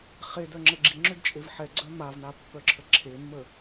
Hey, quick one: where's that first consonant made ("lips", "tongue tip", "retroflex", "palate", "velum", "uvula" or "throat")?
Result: uvula